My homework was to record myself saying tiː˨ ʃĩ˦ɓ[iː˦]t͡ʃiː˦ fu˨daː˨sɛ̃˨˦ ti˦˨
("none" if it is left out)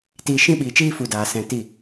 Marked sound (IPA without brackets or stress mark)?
iː˨